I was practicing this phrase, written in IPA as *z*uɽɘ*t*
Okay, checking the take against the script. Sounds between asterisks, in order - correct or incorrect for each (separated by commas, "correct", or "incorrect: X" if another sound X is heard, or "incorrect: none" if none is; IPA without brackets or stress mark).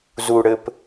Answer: correct, incorrect: p